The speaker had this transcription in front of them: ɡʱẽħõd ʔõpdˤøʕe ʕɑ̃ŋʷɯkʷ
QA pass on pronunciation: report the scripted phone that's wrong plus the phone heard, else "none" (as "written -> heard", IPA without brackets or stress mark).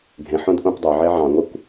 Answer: none